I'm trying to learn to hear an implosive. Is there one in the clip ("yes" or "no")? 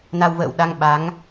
yes